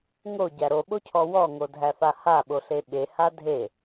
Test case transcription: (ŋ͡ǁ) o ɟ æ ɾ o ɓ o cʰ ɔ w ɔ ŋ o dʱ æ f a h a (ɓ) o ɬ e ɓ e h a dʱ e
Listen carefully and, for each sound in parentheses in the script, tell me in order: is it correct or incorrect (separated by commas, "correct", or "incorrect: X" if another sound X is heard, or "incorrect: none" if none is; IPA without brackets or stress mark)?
incorrect: ŋ, correct